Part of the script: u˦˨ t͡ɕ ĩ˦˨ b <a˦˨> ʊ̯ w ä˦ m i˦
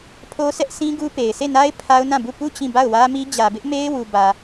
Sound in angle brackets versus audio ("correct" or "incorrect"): correct